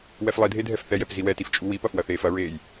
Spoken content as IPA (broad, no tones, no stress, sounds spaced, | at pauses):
w ɛ f lˠ i dʱ e dʱ ɛ f θ ɛ j ɛ p z i w ɛ t i f t͡ʃʼ u w i p ɐ f w ɐ θ eː f ɐ ɹ eː j